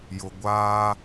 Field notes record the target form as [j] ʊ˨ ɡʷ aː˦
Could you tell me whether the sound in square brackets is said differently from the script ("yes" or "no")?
no